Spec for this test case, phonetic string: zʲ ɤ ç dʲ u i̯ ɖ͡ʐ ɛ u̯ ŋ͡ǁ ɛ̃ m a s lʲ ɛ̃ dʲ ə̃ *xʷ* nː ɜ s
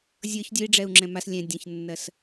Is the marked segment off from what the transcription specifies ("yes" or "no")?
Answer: yes